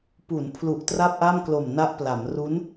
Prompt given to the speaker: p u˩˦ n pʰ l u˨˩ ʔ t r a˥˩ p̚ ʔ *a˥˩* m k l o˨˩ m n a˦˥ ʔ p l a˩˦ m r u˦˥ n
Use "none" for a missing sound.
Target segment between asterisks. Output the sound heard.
a˥˩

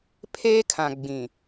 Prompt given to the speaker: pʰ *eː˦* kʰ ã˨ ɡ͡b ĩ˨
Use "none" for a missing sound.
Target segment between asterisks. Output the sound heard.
eː˦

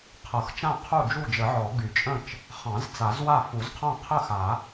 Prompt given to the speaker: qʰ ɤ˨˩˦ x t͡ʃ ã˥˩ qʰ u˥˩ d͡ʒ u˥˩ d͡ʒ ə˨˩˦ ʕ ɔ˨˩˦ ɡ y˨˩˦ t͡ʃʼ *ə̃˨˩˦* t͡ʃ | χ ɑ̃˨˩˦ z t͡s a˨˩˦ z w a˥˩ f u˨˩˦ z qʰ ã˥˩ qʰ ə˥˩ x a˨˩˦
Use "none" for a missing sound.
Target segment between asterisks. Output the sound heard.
ə̃˥˩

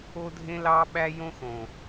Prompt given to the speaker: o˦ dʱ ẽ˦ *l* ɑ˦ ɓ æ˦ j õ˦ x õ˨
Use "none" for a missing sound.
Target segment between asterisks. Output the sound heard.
l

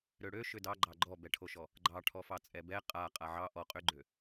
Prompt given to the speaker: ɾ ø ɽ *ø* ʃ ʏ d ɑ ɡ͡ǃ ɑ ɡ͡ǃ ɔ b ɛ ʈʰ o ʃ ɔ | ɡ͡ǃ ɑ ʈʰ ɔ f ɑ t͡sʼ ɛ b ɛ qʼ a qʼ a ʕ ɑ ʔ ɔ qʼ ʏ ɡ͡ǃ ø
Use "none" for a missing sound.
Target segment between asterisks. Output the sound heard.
ø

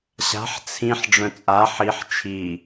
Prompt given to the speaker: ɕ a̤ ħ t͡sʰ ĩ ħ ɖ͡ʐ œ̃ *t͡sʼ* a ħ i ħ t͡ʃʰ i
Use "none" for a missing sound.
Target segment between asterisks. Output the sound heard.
t͡sʼ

